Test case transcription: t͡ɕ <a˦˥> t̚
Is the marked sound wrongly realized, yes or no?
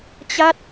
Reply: no